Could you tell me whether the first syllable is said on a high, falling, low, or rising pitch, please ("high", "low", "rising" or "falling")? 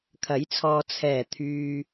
rising